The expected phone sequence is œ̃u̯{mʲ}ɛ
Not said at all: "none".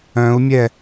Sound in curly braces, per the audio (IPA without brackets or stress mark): mʲ